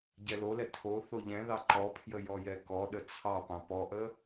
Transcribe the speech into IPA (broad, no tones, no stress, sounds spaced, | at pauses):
ɟ ɛ l o l ɛ tʰ o θ o ʎ ɛ̃ ð ɑ ǃ ɔ pʰ j ə j ɔ j ɛ k ɔ ɗ ə t͡sʰ ɑ p ɑ̃ p ɔ ʔ ə